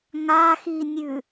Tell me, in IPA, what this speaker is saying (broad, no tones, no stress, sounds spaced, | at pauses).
ŋ a x i nʲ ʉ